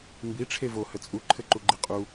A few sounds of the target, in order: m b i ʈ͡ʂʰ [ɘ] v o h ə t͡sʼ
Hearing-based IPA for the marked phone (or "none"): e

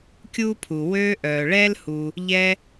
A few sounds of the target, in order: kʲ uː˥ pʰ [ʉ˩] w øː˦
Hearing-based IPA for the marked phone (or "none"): u˩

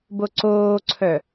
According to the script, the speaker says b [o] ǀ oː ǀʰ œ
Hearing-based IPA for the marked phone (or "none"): o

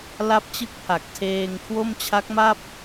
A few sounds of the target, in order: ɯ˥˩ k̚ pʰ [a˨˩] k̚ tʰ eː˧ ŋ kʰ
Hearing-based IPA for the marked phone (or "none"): a˨˩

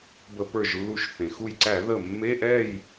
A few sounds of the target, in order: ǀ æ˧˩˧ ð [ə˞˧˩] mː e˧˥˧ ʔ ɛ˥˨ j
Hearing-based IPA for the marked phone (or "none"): ə˧˩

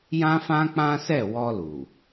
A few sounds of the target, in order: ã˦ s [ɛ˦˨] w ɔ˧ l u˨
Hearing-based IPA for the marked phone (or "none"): ɛ˦˨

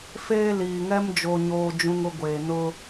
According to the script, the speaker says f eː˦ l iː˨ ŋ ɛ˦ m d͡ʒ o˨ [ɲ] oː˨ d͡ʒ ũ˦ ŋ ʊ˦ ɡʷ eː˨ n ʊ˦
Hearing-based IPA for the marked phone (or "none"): ɲ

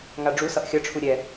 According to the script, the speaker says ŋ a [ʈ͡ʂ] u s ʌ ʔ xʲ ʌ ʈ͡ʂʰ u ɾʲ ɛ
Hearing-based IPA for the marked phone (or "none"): ɖ͡ʐ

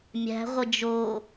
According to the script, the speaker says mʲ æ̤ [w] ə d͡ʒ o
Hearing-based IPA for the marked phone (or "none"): ʁʷ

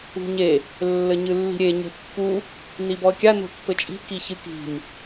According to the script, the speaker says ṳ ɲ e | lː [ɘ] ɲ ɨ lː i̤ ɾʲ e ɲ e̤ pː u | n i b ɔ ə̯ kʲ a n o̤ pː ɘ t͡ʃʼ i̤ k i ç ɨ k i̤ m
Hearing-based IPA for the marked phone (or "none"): ɘ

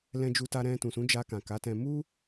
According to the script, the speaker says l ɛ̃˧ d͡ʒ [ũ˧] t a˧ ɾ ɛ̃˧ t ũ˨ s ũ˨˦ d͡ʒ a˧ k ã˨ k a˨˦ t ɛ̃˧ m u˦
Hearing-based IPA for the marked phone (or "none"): u˧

